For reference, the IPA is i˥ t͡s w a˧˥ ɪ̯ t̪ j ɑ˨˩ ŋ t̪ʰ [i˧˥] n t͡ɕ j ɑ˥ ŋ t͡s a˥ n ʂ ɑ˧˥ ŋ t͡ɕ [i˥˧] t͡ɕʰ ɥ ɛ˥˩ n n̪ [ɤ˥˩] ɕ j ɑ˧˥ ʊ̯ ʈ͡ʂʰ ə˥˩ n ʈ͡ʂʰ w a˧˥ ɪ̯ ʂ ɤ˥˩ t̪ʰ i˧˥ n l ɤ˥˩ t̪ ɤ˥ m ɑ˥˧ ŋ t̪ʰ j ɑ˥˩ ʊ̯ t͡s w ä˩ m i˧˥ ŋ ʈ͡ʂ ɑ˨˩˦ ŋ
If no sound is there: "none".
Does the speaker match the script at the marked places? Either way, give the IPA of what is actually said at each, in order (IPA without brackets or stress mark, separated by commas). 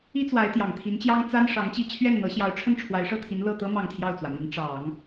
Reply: i˧˥, i˥˧, ɤ˧˥